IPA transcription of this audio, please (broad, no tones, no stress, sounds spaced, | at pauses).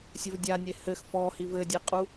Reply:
sʲ ɘ v dʲ a nʲ e h ɘ x f ɔ h i v ɘ dʲ e qʼ u